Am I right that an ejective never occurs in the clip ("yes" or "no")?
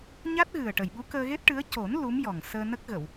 yes